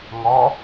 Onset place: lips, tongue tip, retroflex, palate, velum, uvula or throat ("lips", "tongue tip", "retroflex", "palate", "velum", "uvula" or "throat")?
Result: velum